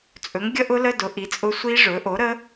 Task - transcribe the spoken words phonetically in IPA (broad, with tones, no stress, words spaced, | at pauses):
t͡sʼɵ˩˥ŋ ɡʲə˦˥ʔʊ˦˥lə˧˥˧ dʊ˩˥ʔi˩˥t͡sʼʊ˦˥ sʷi˦˥ ʐɵ˩˥ ʔo˩˥ɾə˦˥